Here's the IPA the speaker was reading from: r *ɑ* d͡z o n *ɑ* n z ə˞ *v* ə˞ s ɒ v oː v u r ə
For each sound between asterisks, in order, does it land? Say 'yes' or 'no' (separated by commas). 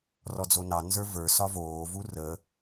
no, yes, yes